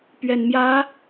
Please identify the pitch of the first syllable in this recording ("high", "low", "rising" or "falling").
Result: low